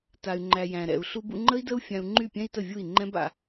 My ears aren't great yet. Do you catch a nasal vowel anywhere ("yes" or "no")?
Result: yes